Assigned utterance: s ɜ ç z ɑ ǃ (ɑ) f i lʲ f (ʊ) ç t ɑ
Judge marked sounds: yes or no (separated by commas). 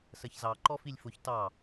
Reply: no, yes